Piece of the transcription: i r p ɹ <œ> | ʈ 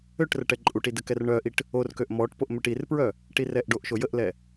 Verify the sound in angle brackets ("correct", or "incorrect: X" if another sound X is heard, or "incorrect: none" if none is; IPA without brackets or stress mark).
correct